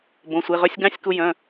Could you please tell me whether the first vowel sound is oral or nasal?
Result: nasal